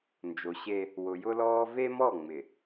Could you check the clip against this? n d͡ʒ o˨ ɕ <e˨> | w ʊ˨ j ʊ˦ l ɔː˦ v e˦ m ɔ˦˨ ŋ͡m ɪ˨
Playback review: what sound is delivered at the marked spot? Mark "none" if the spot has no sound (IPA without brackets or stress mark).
e˦